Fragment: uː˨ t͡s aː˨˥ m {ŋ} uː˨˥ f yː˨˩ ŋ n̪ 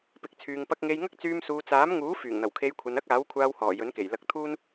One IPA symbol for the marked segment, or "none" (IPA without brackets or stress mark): ŋ